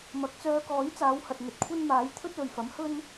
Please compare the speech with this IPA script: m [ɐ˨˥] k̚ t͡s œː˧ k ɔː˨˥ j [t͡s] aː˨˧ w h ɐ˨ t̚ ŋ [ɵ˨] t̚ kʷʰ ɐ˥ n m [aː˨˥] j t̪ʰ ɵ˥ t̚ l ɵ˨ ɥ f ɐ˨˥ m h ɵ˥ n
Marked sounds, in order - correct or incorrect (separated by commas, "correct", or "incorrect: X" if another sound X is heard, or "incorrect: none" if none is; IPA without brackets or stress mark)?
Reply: correct, correct, correct, correct